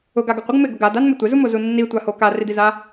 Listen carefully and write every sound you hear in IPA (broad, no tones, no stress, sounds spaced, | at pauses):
ʊ ɡ a ɡ ɪ qʷ ɪ ɡ m ɪ ɡ ʊ ɡ a d a n m ɪ tʷ ɪ z u m o z u nː i tʷ a h o k a r i d i z a